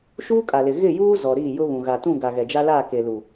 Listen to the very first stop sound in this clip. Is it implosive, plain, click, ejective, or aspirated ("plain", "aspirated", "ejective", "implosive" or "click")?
ejective